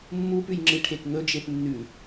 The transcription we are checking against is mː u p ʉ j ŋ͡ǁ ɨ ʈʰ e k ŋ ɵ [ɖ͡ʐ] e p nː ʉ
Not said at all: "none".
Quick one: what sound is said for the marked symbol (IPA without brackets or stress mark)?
d͡ʒ